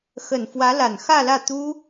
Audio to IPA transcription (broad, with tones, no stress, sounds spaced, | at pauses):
x ə˨˩ n f w ä˧˥ l a˨˩ n x ä˥˧ l ä˥˩ t̪ u˥